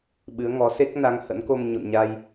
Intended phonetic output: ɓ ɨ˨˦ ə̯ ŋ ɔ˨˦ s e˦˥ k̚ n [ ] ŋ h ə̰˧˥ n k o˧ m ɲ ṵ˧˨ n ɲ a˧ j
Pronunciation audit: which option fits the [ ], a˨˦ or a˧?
a˨˦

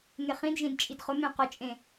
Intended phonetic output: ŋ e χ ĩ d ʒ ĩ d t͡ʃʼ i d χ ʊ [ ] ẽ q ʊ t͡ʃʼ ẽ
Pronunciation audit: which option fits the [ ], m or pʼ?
m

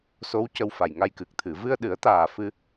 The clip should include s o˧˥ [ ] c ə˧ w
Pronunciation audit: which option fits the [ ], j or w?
w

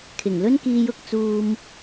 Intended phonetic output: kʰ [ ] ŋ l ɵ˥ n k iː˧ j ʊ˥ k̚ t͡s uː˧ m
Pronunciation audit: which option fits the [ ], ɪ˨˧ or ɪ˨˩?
ɪ˨˩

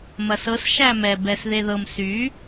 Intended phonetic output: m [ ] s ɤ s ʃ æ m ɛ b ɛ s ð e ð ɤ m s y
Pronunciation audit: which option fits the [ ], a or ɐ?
ɐ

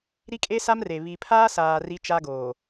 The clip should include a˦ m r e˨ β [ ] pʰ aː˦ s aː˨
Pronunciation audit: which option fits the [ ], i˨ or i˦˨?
i˨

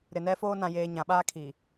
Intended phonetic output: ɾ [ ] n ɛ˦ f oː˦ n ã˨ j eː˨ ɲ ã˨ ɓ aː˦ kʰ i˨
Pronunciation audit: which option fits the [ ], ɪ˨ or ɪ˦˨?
ɪ˨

